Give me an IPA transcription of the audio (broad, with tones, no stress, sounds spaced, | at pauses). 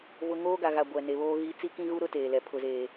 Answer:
v ʊ˨ ŋ oː˦ ɡ a˨ ɣ a˨ ɡʷ ɛ˨ n e˨ β oː˦ ɣ i˦ t͡s i˦ k ĩ˦ ɣ u˦ ɾ ʊ˦ t eː˨ l ɛ˨ pʰ ʊ˨ z eː˨